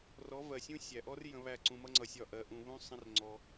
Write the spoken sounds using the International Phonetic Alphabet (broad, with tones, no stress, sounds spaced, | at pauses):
r ɔ˨˦ v ɜ˨ sʲ ũ˦ sʲ æ˨ ʔ ɔ˦ r j ə̃˧ β æ˦˨ ǀ ũ˧ m ʌ˦ ŋ͡ǀ ʌ˧ sʲ ɒ˦˨ ʔ ɜ˧ ʔ ũ˧ β ũ˦ sˤ ə̃˦ r ŋ͡ǀ ɔ˧